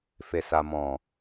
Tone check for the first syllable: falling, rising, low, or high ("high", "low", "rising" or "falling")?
low